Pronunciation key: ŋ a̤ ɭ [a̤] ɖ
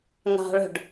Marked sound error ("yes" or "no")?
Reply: yes